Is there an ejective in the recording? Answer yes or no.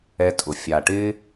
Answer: yes